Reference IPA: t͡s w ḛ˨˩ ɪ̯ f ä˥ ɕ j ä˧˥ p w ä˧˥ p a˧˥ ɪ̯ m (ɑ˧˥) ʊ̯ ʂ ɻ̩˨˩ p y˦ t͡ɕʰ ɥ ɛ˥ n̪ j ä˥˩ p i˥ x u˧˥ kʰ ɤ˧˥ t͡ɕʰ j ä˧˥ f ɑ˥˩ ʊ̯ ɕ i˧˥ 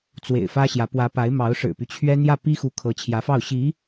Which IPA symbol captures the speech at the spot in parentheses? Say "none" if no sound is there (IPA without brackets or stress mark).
ɑ˧˥